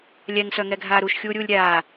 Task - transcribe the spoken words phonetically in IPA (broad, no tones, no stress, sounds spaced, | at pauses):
lʲ ɛ ŋ s œ ŋ ɛ ɡʱ aː ɾ u ʃ xʲ uː ɾʲ uː lʲ ɾʲ aː